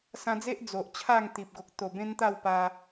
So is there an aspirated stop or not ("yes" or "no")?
yes